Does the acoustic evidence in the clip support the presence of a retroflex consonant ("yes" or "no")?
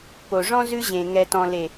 yes